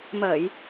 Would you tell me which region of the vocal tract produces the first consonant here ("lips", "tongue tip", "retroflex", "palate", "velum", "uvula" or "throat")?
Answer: lips